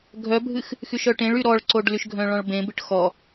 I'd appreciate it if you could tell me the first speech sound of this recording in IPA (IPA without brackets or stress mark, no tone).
ɡʱ